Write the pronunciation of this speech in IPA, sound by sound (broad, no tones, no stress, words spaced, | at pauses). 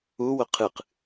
uwʊ qʰɨq